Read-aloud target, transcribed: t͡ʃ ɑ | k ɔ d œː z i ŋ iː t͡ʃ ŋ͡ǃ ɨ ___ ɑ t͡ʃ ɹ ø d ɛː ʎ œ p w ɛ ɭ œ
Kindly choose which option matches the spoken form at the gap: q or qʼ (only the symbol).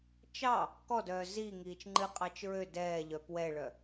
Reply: qʼ